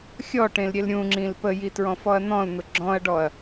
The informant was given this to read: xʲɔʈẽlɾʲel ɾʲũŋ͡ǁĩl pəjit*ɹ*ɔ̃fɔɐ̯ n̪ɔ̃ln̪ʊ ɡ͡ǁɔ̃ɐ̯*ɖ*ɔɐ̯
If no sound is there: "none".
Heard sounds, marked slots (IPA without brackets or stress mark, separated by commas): ɹ, ɖ